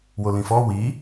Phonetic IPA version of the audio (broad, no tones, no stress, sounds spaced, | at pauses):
w o l ĩ f ɔ w i